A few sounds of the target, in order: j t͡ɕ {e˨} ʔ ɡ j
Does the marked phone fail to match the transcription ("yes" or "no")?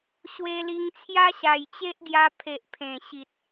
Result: yes